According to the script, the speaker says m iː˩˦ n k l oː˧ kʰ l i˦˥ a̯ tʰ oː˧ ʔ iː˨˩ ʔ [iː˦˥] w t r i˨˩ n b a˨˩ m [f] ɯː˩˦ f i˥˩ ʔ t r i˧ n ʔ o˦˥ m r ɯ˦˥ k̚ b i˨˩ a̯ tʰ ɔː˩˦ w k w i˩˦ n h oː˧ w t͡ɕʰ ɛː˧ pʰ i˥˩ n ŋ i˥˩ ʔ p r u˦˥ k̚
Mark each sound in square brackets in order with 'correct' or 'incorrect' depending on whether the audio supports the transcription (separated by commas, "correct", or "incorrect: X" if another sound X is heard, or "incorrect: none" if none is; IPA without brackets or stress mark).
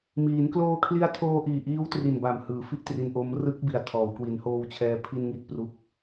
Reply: correct, incorrect: h